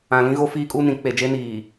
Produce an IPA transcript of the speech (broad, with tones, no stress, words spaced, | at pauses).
ã˨lĩ˦ɣo˦ fiː˦kʼu˦nĩ˨˦ k͡pe˨d͡ʒe˦niː˨